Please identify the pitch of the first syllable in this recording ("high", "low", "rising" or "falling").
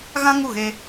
high